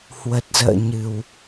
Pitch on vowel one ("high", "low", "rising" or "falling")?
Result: low